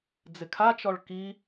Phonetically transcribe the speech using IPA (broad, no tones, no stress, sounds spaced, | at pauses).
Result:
d͡z ɪ kʰ a t͡ʃ ɔ ɭ k i